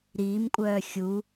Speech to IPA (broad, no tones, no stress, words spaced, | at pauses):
ɾiːmkʷʼœː xʲu